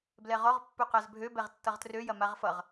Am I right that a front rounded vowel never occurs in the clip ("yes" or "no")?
no